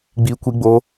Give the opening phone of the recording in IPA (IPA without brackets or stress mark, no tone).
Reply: ɡ͡b